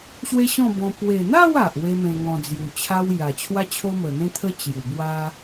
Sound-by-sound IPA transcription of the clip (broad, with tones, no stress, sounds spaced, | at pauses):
ɕ w e˦ ɕ ɔ̃˥˧ b ɔ̃˧ p w e˨˩ n̪ a˥˧ w a˨ ʔ w e˦ m ẽ˧ ŋ ɔ̃˧ d͡z j u˨˩ t͡ɕʰ a˦ w j a˨˩ t͡ɕʰ w a˦ t͡ɕʰ o˦ m ə˨˩ n̪ ẽ˦ t̪ʰ ə˦ t͡ɕ j u˨˩ b w a˦